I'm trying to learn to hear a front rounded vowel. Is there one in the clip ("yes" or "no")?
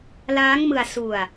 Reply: no